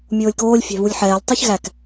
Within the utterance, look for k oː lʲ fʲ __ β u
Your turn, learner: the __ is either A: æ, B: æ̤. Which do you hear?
B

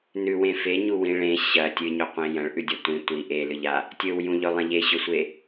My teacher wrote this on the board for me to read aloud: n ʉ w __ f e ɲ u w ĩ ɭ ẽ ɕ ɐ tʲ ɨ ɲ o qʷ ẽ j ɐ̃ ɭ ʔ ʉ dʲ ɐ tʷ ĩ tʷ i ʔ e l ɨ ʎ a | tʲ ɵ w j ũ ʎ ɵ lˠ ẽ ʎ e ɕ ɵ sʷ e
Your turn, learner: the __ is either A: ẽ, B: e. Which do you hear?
A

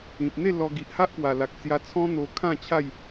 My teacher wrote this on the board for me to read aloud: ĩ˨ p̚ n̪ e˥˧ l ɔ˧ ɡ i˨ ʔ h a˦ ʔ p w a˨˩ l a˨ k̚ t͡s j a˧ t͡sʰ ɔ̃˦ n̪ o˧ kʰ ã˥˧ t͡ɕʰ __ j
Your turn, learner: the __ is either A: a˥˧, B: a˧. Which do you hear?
A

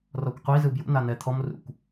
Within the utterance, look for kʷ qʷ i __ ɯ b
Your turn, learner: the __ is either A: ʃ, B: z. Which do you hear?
B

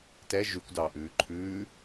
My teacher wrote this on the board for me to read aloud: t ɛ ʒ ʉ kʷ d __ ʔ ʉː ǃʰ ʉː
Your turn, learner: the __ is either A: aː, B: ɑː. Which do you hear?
B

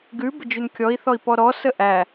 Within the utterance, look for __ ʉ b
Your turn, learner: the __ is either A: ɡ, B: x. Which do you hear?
A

